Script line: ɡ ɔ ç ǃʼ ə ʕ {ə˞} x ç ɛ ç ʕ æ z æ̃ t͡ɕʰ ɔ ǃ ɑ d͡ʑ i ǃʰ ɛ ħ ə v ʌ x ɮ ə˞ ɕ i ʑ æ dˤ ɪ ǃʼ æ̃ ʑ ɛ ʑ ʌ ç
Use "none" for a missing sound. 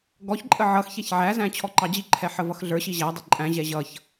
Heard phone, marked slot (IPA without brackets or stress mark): ʌ